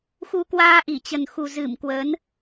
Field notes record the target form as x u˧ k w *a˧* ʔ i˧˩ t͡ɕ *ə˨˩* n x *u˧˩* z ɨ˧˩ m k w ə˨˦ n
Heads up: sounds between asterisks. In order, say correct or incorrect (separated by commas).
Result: incorrect, correct, incorrect